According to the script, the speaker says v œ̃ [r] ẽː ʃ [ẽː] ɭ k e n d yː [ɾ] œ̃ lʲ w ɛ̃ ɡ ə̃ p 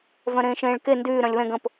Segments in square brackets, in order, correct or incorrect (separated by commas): incorrect, correct, correct